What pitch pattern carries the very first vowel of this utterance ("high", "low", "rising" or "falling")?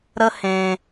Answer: high